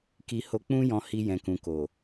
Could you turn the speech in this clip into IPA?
ki˧ ho˧k͡pũ˦jɔ̃˧ hi˧jɛ̃˨kũ˨ ko˨

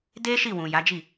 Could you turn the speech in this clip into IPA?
de˦ ʃi˦˨wũ˨ ja˨˦d͡ʒi˦˨

